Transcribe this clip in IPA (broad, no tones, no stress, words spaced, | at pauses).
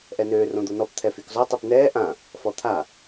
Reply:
ʔɛnøː rõd̪onɔpt̪ʰɛ fykzɔtˤip nɛː ʔã | fɔt̪ʰa